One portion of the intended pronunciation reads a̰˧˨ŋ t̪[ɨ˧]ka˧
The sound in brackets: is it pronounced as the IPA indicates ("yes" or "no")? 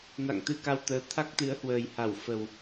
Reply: yes